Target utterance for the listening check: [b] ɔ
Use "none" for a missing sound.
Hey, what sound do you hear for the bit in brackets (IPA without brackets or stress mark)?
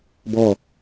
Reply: b